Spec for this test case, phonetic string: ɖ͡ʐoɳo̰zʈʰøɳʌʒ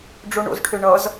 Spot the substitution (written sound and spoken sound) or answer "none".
ʒ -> z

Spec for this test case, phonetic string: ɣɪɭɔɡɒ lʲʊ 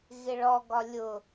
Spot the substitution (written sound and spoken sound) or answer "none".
none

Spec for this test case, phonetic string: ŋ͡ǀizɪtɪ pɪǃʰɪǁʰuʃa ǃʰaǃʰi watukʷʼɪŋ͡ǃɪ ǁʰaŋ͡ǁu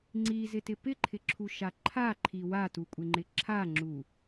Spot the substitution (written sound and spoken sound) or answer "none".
none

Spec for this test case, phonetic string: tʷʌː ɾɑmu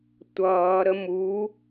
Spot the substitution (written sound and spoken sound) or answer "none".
ɑ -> ə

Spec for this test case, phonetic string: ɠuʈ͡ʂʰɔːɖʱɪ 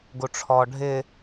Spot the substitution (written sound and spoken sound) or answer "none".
ɠ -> ɡ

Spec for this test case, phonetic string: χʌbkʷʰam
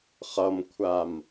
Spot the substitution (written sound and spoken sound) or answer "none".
b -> m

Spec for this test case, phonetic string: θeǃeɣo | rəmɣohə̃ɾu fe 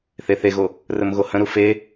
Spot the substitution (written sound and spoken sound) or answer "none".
ǃ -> θ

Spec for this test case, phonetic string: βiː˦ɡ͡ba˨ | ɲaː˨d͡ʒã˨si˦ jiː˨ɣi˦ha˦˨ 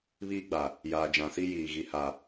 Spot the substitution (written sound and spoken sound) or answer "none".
ɲ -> j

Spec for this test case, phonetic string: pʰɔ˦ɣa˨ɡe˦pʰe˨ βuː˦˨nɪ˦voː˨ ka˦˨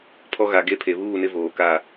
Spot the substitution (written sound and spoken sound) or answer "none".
none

